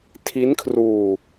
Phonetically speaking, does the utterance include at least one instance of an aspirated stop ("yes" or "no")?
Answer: yes